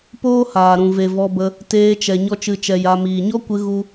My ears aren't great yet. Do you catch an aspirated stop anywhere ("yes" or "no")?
no